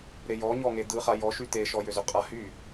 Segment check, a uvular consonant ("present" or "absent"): present